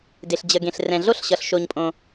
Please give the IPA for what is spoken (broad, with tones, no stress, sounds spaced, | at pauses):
d e˩ ɬ d͡ʑ ə˩ ɡ ẽ˩ ɬ r ɛ̃˩ ɮ o˥ ɬ ɕ ʌ˩ ɬ ʃ o˩ ɲ pʼ õ˩